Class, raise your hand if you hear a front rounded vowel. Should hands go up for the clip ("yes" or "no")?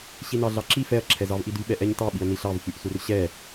yes